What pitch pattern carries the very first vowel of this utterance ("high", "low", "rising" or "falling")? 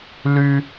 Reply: high